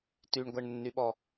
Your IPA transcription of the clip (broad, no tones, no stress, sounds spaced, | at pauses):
t y ɳ ɡʷ æ ɳ nː y ɓ ɔ